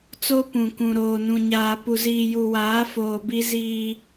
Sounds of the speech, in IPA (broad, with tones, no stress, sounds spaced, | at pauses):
t͡s o˦ p ũ˨ k ũ˨ ɾ oː˨ n ũ˨ ɲ aː˨ p u˨ z iː˨ j u˨ w aː˨˦ f oː˨ b i˦ z iː˦